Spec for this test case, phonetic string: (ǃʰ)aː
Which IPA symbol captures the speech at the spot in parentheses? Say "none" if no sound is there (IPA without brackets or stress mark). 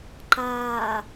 ǃ